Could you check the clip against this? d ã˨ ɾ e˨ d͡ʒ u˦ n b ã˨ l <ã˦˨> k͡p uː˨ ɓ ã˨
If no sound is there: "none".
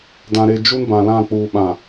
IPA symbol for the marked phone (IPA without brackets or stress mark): ã˦˨